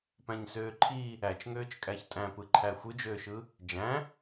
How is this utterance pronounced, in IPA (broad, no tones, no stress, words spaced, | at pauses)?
pæ̃ɲsøːǃʰi | æt͡ʃŋøːt͡ʃ kʼæçtʼæ̃pɯ ǃʰæxʷɯd͡ʒøːʃɯ | d͡ʒæ̃